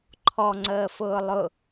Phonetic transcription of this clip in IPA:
ǃʰɔŋ͡ǀəːfʊː lˠʊ

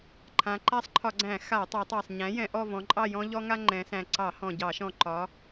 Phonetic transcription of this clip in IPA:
ǃʰã˩˧ǃa˦sˤǃʰɒ˧˩˧ɡ͡ǀæ̃˧˩˧ xa˧˩˧tˤa˩˧tˤɑ˨˩sˤ ɲæ̃˩˥jɛ̃˩˧ʔɔ˦˨vɔ̃˩˧ ǃʼɑ˦˨jɔ̃˦ ʎɔ˦ŋa˦ ŋ͡ǃɛ̃˩˧sæ̃˨˩ǀɑ˧˩˧ hɔ̃˨˩ ɟɑ˧˩˧ʃɔ̃˨˩ ǃɒ˩˧

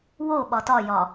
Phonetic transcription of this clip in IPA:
wo ɓɒtɒjɒ

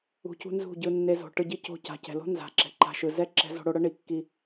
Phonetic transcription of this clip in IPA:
ṳ˧cṳ˦ nzṳ˦˨ɟɯ˧nːe˧ zo̤˨ ʈɯ˧ɟi˦ co̤˧ca̤˨cɛ̤˨lo̤˦ nza̤˨ ǁɛ̤˨ǃa̤˧ʃɯ˨ zɛ˦ ǁɛ̤˦ zo̤˧ɽo˧ɽɤ˦ ɳi˧kːi˦

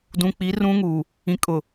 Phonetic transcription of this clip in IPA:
dũ˨k͡pi˨˦rũ˦ŋuː˨ | ĩ˨kʼʊ˨

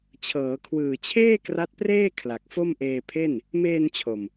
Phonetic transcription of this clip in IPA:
t͡ɕʰɤː˩˦kʰwɯː˨˩t͡ɕʰeː˥˩ kra˦˥t̚preː˥˩ kʰla˨˩k̚fo˥˩mʔeː˧ pʰe˥˩n | meː˧n t͡ɕʰo˨˩m

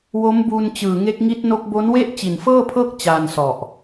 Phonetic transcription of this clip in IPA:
wo˦˥mbuː˧nt͡ɕɯː˨˩ŋe˦˥k̚ ŋi˦˥t̚no˦˥k̚ bo˦˥nwe˥˩ʔ t͡ɕi˨˩nfɤː˥˩pʰɤː˥˩k̚ t͡ɕaː˧nsɔ˨˩ʔ

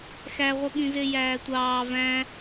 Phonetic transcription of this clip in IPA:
xæʁʷɯɠĩze jæːtʷɑː væ̃

